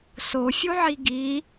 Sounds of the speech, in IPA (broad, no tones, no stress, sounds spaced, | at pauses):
s o fʲ u ʕ i ɡ i